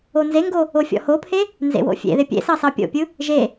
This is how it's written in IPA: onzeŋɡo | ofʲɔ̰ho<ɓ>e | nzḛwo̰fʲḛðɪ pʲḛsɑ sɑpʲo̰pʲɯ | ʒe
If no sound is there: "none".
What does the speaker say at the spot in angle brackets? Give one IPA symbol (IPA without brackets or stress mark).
pʰ